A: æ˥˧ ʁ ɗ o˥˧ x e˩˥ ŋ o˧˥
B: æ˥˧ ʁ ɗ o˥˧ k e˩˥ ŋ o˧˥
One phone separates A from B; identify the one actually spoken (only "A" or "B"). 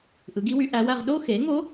A